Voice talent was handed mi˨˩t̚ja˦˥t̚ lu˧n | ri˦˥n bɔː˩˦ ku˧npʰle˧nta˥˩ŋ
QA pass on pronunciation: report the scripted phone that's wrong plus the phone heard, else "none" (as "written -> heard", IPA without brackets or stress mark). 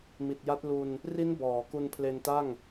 none